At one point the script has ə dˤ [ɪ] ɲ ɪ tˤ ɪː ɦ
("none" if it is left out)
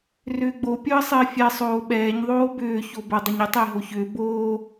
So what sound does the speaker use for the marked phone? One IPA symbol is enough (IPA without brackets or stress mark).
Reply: ə